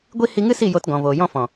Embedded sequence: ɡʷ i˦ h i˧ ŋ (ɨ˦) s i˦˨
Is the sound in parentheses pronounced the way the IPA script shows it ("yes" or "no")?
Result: yes